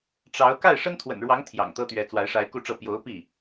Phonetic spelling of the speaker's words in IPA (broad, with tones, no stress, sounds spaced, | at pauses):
ʈ͡ʂ ɑ˧˥ ʊ̯ k a˥˩ ɪ̯ ʂ ə˥ n t̪ʰ w ə̰˨˩ n ɻ w ɑ˧˥ ŋ t̪ʰ j ɑ̰˨˩ ŋ t̪ ɤ˥ t̪ ɥ ɛ˧˥ t͡s w a˧˥ ɪ̯ ʂ a˧˥ ɪ̯ k u˥˧ ʈ͡ʂ ɤ˥˩ p j o˧˥ ʊ̯ p i˥˩